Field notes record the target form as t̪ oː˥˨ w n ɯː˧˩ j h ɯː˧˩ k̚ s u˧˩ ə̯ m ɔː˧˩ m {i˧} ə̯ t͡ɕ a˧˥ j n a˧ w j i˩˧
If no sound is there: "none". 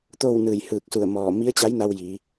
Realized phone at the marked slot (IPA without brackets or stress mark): i˧˥